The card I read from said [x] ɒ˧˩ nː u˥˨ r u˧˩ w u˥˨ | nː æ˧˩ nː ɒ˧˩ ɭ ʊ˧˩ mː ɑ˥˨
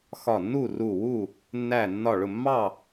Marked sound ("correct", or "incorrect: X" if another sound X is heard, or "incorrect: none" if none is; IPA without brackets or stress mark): correct